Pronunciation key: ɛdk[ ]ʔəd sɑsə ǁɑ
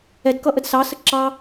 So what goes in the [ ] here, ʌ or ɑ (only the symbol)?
ʌ